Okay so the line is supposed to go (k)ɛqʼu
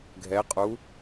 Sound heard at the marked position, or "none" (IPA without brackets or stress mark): ɡʱ